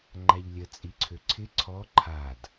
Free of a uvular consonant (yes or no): yes